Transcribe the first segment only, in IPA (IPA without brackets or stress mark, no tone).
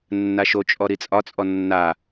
nː